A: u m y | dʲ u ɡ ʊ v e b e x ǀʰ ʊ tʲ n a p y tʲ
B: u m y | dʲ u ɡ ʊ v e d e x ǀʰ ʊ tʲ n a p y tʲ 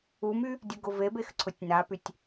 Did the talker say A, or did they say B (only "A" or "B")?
A